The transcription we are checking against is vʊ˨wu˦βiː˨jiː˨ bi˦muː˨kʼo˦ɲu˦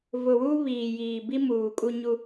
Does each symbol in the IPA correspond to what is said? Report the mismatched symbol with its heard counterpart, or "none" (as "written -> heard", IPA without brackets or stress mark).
o˦ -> u˦